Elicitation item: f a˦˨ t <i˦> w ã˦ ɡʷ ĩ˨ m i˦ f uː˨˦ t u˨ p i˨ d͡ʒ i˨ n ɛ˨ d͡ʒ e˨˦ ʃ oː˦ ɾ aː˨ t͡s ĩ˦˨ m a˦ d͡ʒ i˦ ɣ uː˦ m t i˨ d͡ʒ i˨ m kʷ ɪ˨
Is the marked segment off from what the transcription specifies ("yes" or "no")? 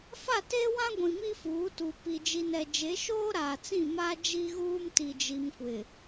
yes